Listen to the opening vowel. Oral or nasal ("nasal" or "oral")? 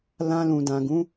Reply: nasal